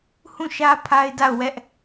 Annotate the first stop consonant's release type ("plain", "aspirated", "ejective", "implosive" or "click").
aspirated